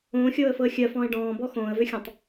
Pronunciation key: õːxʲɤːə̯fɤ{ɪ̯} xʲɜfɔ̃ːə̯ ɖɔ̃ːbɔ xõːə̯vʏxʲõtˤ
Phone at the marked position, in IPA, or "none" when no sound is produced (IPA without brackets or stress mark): ə̯